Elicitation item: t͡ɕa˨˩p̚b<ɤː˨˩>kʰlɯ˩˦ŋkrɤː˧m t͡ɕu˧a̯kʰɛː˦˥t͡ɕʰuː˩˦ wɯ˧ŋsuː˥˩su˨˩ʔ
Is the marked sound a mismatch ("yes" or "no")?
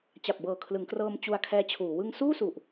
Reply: no